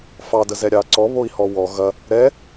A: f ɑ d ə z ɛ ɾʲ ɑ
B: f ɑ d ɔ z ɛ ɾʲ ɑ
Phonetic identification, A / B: A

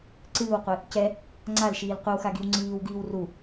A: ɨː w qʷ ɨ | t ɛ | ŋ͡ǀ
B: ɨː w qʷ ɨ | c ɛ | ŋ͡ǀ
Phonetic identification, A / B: B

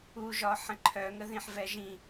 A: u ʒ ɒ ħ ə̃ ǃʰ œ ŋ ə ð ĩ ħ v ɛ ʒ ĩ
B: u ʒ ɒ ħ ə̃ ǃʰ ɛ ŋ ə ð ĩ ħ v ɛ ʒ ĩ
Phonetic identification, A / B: A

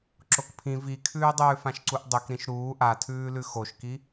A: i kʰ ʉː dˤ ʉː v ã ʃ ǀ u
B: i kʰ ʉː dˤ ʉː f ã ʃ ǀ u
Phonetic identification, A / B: B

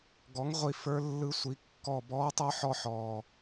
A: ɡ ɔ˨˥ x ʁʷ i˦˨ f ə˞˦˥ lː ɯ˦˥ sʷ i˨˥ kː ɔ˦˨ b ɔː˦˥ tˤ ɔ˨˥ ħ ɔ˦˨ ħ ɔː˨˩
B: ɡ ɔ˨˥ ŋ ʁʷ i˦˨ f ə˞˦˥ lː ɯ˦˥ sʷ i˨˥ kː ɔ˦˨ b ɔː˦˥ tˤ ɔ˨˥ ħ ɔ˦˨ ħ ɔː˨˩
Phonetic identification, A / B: B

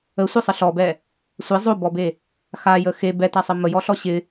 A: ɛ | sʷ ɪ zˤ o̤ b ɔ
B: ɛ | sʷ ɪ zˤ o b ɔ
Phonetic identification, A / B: B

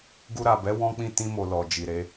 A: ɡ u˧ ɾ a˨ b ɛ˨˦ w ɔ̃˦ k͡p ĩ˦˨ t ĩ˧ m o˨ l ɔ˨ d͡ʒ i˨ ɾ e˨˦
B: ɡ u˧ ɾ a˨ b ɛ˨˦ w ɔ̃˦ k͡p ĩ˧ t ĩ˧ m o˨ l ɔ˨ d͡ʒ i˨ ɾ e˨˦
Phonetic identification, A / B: A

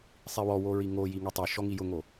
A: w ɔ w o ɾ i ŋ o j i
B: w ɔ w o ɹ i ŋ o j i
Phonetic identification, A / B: B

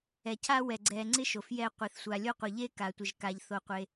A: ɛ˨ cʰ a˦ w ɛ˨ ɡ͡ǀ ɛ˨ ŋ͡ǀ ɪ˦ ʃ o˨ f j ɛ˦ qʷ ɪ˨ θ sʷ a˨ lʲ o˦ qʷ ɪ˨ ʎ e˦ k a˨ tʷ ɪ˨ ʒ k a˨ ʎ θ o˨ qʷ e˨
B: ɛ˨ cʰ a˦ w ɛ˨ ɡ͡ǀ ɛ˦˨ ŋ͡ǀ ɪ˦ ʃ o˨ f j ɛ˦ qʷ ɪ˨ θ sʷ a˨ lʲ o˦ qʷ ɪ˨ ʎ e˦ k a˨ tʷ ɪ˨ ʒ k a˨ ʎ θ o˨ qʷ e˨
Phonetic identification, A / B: A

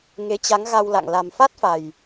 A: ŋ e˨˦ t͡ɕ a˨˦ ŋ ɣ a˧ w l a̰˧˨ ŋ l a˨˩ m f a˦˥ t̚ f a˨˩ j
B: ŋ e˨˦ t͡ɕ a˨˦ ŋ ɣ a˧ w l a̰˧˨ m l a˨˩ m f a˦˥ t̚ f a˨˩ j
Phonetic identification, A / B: A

